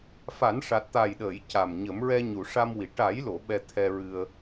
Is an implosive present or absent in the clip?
present